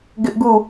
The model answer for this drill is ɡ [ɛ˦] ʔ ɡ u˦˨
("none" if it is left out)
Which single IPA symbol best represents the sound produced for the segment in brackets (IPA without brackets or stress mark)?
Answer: ɪ˦